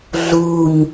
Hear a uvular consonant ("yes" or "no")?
no